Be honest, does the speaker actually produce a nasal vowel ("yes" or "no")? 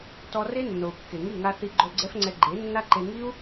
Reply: no